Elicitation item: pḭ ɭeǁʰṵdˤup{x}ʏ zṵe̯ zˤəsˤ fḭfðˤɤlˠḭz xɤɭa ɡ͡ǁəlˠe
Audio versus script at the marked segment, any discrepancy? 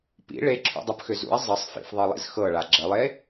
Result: no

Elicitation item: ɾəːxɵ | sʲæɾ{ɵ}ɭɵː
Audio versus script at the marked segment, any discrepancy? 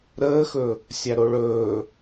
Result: yes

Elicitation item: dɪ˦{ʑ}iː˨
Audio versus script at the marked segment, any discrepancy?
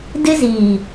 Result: yes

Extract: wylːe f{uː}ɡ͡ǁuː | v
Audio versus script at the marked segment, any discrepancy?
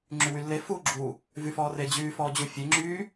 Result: no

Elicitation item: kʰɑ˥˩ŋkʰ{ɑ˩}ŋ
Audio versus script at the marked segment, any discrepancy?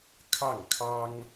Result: yes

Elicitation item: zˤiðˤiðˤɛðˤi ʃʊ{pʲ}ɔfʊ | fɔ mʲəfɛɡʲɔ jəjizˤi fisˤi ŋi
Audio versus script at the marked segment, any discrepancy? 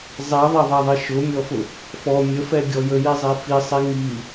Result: yes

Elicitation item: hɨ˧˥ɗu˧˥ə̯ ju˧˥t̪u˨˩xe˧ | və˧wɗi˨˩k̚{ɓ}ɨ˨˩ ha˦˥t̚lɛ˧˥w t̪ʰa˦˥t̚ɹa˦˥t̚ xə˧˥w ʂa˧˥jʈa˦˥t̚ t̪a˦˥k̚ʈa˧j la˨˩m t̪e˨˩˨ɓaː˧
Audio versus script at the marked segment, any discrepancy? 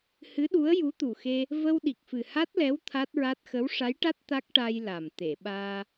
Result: yes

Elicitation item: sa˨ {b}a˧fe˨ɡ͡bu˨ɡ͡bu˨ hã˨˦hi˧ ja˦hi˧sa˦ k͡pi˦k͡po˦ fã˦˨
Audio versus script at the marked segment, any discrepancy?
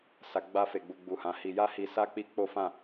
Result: yes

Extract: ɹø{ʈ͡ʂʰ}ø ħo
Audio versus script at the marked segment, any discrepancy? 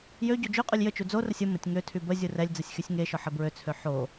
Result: yes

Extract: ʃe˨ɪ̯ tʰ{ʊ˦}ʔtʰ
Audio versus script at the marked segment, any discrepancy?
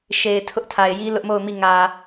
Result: no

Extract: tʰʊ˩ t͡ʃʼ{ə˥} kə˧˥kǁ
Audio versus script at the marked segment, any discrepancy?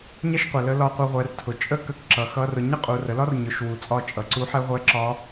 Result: no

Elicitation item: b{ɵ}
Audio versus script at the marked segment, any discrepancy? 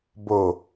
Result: yes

